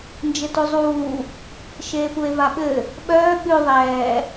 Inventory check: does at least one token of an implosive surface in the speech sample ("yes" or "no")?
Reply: yes